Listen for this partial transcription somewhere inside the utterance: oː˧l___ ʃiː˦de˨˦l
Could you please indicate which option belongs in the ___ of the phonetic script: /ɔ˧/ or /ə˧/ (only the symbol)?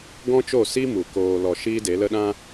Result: ɔ˧